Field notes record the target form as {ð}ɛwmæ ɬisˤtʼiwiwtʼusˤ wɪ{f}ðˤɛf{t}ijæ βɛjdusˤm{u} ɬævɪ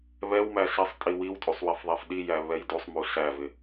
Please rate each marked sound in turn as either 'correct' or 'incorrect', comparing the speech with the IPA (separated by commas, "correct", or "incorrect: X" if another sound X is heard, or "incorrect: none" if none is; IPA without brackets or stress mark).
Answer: incorrect: β, correct, incorrect: ɗ, correct